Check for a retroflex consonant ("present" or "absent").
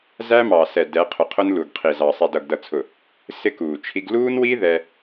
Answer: absent